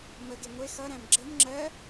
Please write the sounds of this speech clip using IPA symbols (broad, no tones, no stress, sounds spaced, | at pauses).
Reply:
m ə ɡ e ŋʷ e x ʌ ɾ æ̃ m ɡ͡ǁ ə m ŋ͡ǁ ɜ